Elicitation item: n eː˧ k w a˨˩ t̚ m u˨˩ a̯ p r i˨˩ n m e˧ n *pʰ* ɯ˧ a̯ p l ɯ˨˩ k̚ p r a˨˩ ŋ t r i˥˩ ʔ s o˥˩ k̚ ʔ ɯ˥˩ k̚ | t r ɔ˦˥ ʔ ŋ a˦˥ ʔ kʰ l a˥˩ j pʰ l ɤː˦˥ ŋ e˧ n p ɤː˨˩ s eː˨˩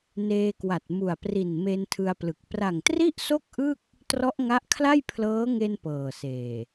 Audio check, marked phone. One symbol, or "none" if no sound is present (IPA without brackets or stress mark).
tʰ